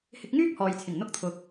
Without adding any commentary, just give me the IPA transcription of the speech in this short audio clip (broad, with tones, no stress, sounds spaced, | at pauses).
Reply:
h ɪ˧ k̚ ŋ yː˥ k̚ h ɔː˨ j t͡sʰ ɪ˨˩ ŋ n̪ ʊ˥ k̚ t̪ʰ ʊ˧ k̚